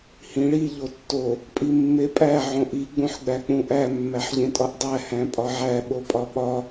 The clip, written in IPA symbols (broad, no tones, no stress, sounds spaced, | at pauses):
h ĩ ɭ i ʎ o tː o | pʼ i mː e pʼ æ ʕ õ ʔ i ɡ͡b ũ ħ ɡ͡b æ k͡p ũ ʔ æ mː æ ħ ʎ ẽ tʼ ɒ ʔ dˤ æ h æ̃ pʼ ɒ ʕ æ ɓ o pʼ ɒ ɓ ɒ